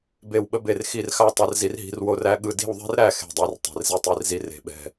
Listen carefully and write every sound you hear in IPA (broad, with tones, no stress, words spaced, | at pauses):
be˥˩wɓə˥be˥˩r xi˥˩rxa˥ tˤɛ˥rzi˥rɦi̤˥rwo˥r æ˥ɠɯ˥˩ di̤˥˩wðˤɛ̤˥rɾæ˥˩ xe̤˥˩dˤæ˥r tˤe̤˥˩rzi˥tˤi˥˩rzi˥ re̤˥˩ɓɛ̤˥˩